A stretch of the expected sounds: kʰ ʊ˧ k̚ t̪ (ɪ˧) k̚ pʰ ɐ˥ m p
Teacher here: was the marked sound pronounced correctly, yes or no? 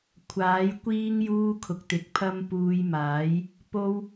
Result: yes